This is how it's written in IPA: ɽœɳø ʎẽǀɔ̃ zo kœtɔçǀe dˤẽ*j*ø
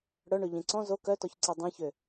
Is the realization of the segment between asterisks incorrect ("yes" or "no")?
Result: yes